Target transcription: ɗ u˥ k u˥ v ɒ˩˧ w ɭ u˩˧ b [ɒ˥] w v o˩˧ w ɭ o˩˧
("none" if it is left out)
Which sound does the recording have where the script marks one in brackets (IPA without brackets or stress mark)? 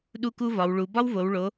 ɒ˥